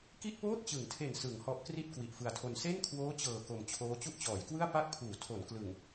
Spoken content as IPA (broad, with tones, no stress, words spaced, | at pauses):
ki˥˩ʔpoː˥˩t̚t͡ɕɯ˩˦ŋtʰe˨˩n sɯ˩˦ŋhɔ˦˥ʔ kri˥˩t̚ kwi˨˩ʔfɯ˧a̯tʰo˧n se˥˩nkʰwoː˦˥t͡ɕɤː˨˩ ko˨˩mt͡ɕʰoː˦˥ t͡ɕu˦˥ʔt͡ɕɔː˩˦jkwɯ˥˩a̯ pa˥˩k̚pʰuː˩˦ tʰo˩˦n klɯ˨˩ŋ